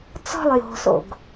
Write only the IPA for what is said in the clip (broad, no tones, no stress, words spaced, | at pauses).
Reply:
t͡sɔ̤lˠ jo̤so̰ɡ